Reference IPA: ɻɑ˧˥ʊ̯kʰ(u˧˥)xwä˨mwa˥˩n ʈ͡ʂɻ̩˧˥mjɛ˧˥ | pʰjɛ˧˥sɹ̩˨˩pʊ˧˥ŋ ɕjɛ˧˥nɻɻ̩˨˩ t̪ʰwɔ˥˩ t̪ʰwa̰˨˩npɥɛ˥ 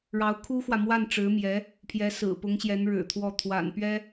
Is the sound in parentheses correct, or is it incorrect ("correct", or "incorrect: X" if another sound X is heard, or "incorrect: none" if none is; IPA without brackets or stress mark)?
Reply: incorrect: u˥